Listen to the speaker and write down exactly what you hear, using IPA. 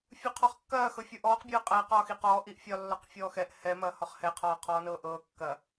fʲ u qʰ ɔ χ kː ɐː x ɤ fʲ u ʔ ɔː q bʲ ɤː qʼ ɐː q ɒː x i q ɔː ʔ i ʔ fʲ ɒ lː ɒ q fʲ ɔː x ɛ ʔ h ɛ m ɐː h ɒ χ h ɛ qʰ ɒː qʰ ɔː n ɤː ʔ ɤː kː ɐ

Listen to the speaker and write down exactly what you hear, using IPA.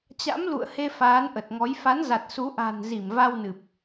t͡ɕ a̰˧˥ m l ṵ˧˨ ə̯ h e˧ f aː˨˦ n ʔ ə˨˩ t̚ ŋ ɔ˨˦ j f a˨˦ n z a˨˩ t̚ s u˨˦ ʔ a̤˨˩ n z i˧˩ m v a˧ w n ɨ˨˩ p̚

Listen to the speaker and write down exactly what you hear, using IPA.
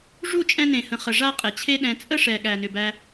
ʐ u˦˨ t͡ʃʼ ɛ̃˧ n ẽ˨ h ə̃˨ χ ə˨ ʐ a˧ qʼ ɛ˨ t͡ɕʰ e˦ ɗ ɛ̃˧ t͡sʼ ə˦ ʂ ɛ˨ ɠ æ˨ n ʏ˨ b æ˧

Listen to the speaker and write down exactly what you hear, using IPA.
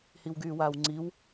h i w ɡ yː w aː w ŋ͡ǀ i w

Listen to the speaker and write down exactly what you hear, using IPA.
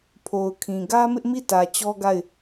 pʰ o˨ ʊ̯ kʰ ĩ˨ ɡ ä˦ m ɪ˦ ʔ m i˦˨ t ä˨ t͡ɕ ɔ˦ ɡ a˦˨ ɪ̯

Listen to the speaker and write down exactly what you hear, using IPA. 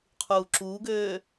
qʰ uː ǁ uː ɡ øː

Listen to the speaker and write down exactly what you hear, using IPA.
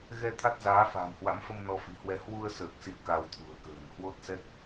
ɣ ɛ˧ t̪ʰ a˦˥ t̚ z aː˨˦ f a̤ː˨˩ m h w a̰˧˥ m f ə˧ m n ɔ˧ f i̤˨˩ h w ɛ˧ h w u˧ ə̯ s əː˨˩ k̚ s ḭ˧˨ ə̯ k a˧ w t̪ʰ ṳ˨˩ ə̯ k ə̤ː˨˩ n h w o˦˥ t̚ s ɛ˦˥ k̚

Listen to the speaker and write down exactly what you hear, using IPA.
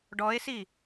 ɖ ɔ e̯ s i

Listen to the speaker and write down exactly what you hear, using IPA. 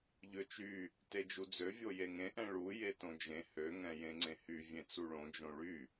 ʎ ø t͡ʃ y | t e d͡ʒ u d͡z ø vʲ o j e ŋ ẽ ʔ ɛ̃ ɭ u j e t õ d͡ʒ ẽ h ø ŋ ɛ̃ j ẽ ŋ͡ǀ ẽ h y vʲ ẽ t͡s u ɭ õ d͡ʒ õ ɭ y

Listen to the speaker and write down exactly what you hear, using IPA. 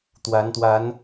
t̪ w a˨˦ n t̪ w a˨˦ n

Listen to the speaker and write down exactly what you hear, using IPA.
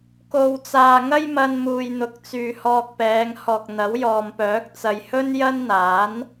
k o˨ w t͡s aː˨ ŋ ɐ˥ j m ɐ˧ n m uː˨ j n̪ ʊ˨˥ k̚ t͡s yː˨ h ɔː˧ k̚ p ɛː˨˧ ŋ h ɔː˨ k̚ n̪ ɐ˨˥ w j ɔː˨ m p œː˨˥ k̚ t͡s ɐ˨ j h ɵ˥ n j ɐ˥ n n̪ aː˨˥ n

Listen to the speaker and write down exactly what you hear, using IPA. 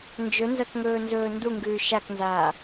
n d͡ʒ ɵ n z ɐ k ŋ ɵː n z ɵː n d u ŋ ɡ ʉː ʃ a k n z aː

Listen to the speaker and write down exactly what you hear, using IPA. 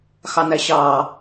x ɑ n æ ɕ ɑ

